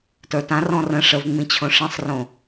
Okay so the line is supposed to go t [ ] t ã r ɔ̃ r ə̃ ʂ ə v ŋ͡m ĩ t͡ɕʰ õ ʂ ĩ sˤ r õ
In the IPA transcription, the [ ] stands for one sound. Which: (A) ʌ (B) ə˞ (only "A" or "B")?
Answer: B